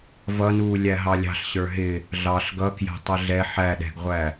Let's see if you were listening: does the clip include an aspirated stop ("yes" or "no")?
no